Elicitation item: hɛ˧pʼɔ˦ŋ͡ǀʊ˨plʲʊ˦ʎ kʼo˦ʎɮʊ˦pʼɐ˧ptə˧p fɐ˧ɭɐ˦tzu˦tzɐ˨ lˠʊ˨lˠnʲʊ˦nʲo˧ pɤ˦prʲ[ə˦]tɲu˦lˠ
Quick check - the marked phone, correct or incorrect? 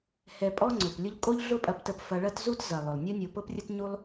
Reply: correct